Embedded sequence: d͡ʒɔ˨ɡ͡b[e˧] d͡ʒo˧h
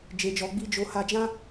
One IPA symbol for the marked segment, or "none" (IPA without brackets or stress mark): i˧